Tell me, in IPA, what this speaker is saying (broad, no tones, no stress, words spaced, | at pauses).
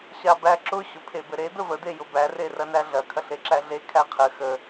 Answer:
ɕabæǁʊ ɕʊpʰebɘɾe d̪əvə d̪ejʊbæ rerɐnæɮɐ kʰɐɬeǁæɮe kʰæqʰɘ xə